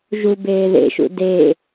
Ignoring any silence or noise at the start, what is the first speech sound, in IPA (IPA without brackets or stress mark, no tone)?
ʒ